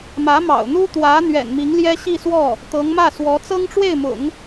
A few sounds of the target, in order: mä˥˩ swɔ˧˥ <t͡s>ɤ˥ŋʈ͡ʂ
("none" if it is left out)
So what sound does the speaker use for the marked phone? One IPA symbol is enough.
t͡s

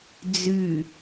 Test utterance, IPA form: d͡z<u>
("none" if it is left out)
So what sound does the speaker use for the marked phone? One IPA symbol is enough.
y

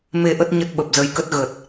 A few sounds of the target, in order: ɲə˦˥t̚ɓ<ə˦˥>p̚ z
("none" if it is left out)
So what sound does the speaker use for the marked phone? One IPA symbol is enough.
ə˨˩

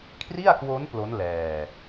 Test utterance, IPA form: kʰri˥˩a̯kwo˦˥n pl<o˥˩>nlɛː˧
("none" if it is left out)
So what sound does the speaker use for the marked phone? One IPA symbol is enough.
o˦˥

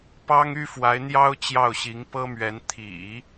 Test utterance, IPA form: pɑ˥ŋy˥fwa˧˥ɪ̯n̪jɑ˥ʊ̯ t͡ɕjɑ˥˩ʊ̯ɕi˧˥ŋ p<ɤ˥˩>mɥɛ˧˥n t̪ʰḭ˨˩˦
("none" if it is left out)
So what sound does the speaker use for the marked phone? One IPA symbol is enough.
ɤ˥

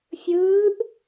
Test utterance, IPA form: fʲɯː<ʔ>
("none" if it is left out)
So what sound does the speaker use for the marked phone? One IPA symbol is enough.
ʔ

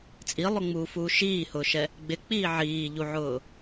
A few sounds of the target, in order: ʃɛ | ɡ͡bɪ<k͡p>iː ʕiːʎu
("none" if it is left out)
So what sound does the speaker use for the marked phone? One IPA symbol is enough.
k͡p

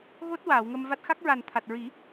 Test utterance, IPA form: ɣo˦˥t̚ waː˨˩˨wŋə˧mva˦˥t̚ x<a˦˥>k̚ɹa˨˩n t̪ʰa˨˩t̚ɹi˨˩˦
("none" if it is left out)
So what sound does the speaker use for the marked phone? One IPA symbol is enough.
a˦˥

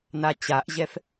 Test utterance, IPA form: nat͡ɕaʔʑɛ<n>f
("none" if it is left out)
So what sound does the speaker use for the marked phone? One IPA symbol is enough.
none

